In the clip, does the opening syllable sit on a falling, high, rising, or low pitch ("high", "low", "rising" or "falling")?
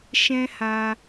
high